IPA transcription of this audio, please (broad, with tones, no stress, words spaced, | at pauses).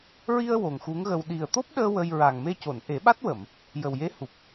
ɹi˧ə̯ wo˨˩ŋxu˧˥ŋɣə˧w ɗi˨˩ə̯t̪o˦˥p̚ɗəː˧ wə˧j ɹa˨˩ŋme˧co˨˩˨n ʔe˨˩˦ɓa˦˥t̚wə˨˩˨m | jə˨˩wje˧˥hu˨˩p̚